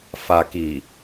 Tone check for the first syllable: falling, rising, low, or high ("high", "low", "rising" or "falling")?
low